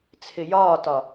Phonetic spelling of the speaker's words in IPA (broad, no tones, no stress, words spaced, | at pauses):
t͡sʰɪjɒːtɒ